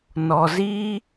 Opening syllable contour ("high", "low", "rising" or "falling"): low